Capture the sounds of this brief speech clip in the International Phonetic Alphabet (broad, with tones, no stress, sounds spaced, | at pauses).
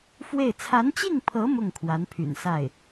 f w e˥˩ ɪ̯ t͡sʰ a˧˥ n t͡ɕ i˥˩ ŋ pʰ ɤ˧˥ m ʊ˥˩ ŋ kʰ w a˧˥ n pʰ y̰˨˩ n s a˥˩ ɪ̯